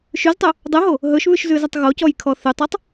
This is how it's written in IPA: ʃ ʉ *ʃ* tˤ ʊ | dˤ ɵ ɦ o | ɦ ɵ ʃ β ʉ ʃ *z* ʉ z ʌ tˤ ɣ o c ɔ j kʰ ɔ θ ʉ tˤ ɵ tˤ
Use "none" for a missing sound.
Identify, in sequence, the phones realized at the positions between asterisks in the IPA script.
z, z

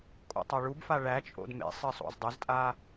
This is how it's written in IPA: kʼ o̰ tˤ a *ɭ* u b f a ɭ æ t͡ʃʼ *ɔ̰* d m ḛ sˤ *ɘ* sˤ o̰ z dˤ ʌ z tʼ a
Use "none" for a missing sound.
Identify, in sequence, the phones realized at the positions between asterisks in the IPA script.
ɭ, o̰, ɘ

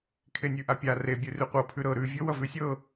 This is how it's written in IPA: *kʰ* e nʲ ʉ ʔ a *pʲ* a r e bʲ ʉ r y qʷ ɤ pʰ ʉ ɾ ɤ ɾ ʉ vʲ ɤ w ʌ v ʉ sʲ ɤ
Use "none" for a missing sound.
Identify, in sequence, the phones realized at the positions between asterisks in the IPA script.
kʰ, pʲ

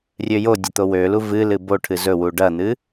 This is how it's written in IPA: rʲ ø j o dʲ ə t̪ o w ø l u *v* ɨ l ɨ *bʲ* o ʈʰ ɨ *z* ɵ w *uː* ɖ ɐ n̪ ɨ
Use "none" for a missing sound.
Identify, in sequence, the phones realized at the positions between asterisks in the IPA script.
v, b, z, u

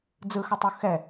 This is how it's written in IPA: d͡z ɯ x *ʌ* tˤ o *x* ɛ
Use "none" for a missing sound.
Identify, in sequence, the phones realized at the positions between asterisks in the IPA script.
ʌ, x

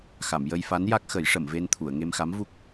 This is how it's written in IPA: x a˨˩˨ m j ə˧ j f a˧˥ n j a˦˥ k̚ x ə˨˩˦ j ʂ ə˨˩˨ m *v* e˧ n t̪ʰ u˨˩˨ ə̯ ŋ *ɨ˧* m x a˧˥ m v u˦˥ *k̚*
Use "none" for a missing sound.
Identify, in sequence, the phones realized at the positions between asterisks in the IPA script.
v, e˧, k̚

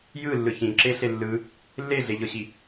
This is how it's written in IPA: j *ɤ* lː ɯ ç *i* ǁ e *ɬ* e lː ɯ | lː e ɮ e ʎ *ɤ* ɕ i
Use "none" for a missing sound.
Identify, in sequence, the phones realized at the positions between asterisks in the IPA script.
ɯ, ĩ, ɬ, ɤ

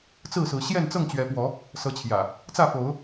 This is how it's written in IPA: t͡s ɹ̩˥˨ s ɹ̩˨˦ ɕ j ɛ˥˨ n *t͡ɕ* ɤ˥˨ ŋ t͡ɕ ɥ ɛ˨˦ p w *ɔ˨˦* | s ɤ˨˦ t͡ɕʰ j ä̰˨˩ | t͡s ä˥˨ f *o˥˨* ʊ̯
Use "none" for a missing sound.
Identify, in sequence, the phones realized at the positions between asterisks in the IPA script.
t͡s, ɔ˨˦, o˨˦

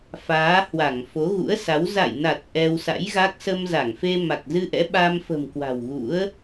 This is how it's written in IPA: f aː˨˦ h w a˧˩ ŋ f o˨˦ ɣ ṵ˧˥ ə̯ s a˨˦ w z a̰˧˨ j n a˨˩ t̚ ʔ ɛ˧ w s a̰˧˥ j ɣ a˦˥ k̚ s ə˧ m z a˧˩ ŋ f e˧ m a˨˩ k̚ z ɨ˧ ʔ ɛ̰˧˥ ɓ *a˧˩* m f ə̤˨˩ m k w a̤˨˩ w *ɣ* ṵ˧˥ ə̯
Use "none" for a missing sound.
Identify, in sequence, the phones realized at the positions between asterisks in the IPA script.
a˧, ɣ

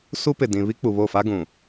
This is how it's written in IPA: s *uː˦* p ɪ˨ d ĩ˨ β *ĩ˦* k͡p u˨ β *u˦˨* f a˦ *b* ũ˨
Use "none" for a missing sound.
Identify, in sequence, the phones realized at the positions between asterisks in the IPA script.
u˦, i˦, o˦˨, ɡ

